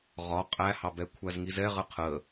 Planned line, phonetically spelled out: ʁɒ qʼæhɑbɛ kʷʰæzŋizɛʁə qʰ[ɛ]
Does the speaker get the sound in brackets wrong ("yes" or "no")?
yes